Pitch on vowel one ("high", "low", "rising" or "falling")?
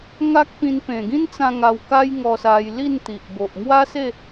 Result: high